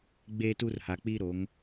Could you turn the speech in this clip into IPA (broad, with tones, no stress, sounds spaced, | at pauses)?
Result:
ɡ͡b e˦ t u˦ r h a˨ k͡p i˦ ɾ o˨˦ ŋ